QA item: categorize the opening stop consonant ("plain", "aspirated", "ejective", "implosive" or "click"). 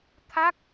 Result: aspirated